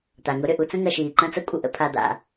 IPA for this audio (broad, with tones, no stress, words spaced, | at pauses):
t̪a˩ŋʊ˦ ɾʏ˩ ʔu˦t͡sə̃˥ ŋɐ˨ʃiː˩ ǃɐ̃˦t͡sɐ˦kʷʼə˨ʔə̰˨ pʰa˨d̪a̰˩